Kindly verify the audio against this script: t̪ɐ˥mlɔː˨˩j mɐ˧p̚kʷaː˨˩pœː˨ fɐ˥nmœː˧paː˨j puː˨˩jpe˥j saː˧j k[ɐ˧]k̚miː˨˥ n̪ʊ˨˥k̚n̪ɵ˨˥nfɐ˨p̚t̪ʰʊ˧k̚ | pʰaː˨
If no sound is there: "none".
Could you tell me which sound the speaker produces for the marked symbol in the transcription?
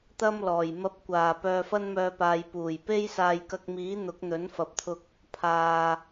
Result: ɐ˧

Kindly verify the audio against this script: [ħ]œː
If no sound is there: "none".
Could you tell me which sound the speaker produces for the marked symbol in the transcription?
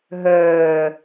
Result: ɦ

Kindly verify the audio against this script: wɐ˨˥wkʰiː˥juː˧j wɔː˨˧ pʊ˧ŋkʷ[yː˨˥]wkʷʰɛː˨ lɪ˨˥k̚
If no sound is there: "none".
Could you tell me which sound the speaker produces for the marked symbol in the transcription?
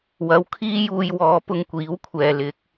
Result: iː˨˥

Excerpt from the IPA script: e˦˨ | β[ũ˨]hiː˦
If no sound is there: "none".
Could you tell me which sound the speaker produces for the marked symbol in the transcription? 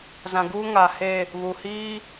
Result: u˨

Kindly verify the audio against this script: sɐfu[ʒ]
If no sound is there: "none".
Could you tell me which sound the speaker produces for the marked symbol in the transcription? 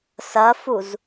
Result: z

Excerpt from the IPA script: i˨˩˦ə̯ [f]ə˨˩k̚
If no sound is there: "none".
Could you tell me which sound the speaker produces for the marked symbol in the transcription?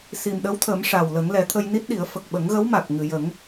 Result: f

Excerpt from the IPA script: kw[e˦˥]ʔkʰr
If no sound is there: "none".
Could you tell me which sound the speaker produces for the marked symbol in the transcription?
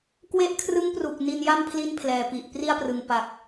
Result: e˦˥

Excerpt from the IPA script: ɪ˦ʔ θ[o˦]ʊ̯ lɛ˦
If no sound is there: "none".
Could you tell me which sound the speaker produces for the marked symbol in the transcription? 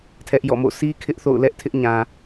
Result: o̰˦˨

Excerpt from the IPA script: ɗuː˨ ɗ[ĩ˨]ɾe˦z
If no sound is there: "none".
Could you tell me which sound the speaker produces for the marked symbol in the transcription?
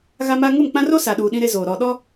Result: ĩ˦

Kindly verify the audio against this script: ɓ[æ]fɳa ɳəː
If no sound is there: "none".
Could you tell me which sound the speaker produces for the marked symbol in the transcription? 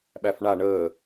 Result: æ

